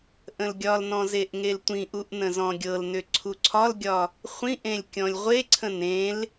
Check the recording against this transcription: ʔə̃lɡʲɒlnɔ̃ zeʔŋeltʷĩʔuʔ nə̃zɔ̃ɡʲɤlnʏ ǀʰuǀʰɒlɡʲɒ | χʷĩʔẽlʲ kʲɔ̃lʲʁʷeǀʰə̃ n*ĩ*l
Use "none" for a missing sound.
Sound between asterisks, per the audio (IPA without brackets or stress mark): ẽ